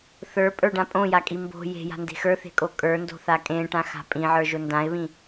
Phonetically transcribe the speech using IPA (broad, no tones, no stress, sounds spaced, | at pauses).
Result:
θ ə˞ pʼ ə˞ ɖ ã pʼ õ j a kʼ i m b o̤ j e̤ j a̤ n d e̤ x ə˞ θ e̤ kʼ o kʼ ə˞ n d o̤ θ a kʼ ẽ ʈ ã x a̤ pʼ ĩ ʕ ə˞ ʒ ʊ n d ã ɪ̯ β ĩ